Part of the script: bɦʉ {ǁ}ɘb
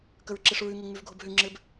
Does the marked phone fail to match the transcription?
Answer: yes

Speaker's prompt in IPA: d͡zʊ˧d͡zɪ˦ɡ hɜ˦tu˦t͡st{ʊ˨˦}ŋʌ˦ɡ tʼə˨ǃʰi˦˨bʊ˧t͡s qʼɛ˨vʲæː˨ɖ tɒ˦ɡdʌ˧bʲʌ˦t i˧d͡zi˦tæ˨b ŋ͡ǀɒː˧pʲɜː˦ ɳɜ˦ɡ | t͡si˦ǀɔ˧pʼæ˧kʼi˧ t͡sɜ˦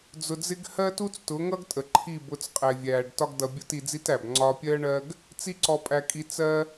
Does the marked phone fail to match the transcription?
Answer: no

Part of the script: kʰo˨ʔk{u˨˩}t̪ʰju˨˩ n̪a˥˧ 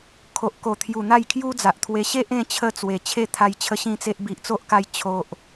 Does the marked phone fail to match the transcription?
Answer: yes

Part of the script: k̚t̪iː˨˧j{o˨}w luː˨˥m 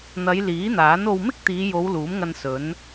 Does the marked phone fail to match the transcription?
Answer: yes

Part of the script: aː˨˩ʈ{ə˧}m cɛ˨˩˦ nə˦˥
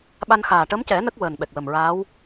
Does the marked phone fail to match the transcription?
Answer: yes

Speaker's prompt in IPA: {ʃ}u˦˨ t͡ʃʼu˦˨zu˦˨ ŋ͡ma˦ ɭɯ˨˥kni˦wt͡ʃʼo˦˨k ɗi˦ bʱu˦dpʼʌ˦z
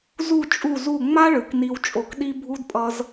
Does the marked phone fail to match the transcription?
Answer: yes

